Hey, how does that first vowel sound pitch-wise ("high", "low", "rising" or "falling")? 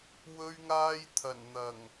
high